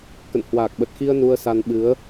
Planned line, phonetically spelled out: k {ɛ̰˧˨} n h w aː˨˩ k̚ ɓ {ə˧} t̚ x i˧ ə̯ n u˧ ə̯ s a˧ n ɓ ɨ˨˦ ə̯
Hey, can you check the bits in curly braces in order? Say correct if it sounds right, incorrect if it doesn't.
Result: incorrect, incorrect

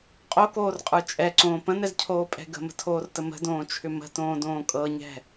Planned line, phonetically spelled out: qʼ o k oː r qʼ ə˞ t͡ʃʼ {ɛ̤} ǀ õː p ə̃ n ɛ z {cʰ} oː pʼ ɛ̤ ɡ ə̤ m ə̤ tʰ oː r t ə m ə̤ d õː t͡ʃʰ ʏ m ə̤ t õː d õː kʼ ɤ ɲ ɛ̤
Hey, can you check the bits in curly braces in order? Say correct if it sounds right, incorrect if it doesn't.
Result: incorrect, correct

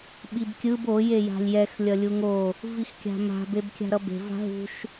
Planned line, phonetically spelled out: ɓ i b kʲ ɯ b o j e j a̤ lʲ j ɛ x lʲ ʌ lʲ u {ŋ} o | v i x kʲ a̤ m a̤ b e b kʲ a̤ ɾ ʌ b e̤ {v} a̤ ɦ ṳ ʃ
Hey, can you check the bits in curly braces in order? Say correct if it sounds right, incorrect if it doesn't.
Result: correct, correct

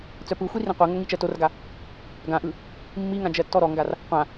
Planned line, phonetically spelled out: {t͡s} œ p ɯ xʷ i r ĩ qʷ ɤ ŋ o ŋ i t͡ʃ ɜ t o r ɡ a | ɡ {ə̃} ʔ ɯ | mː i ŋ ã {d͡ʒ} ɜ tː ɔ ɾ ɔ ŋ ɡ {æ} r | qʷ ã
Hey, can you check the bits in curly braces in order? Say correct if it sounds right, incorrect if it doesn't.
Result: correct, incorrect, correct, incorrect

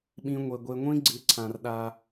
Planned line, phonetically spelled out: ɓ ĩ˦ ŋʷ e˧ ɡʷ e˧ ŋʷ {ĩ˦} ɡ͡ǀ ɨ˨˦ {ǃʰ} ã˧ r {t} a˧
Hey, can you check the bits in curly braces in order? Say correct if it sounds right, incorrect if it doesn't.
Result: correct, incorrect, incorrect

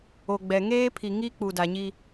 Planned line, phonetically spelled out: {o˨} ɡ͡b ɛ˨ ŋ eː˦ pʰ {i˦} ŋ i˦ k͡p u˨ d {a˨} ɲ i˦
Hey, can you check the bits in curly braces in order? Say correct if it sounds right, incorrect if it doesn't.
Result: correct, incorrect, correct

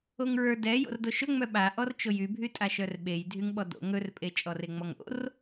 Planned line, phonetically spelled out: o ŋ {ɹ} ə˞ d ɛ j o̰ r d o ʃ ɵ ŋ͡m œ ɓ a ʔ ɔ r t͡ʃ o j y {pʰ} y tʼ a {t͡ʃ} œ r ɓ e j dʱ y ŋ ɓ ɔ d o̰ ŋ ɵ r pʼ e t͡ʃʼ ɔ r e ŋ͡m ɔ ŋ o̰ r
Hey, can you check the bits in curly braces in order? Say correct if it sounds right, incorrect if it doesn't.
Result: correct, incorrect, incorrect

